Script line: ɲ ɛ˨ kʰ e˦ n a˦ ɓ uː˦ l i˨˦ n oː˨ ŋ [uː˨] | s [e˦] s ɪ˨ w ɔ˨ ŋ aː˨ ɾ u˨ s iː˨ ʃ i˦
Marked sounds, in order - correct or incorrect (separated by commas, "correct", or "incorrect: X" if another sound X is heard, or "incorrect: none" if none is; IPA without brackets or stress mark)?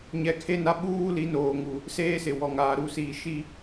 incorrect: u˨, incorrect: eː˦